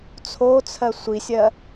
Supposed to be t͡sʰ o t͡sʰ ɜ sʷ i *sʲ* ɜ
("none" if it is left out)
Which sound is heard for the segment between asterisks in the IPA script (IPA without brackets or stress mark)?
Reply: sʲ